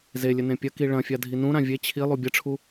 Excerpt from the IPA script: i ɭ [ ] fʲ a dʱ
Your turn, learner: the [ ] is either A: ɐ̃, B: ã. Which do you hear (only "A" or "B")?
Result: A